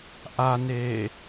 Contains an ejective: no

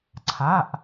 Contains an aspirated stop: yes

